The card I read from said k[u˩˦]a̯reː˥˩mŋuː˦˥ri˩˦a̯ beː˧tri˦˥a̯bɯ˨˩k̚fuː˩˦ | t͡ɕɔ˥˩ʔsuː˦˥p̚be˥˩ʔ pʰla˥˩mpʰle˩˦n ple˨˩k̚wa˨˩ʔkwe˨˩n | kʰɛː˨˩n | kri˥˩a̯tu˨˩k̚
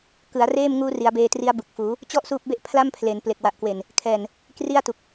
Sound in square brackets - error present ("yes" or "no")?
yes